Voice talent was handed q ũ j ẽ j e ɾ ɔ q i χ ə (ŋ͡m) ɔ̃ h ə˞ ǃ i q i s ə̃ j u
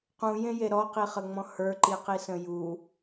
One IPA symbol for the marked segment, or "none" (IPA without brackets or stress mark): ŋ͡m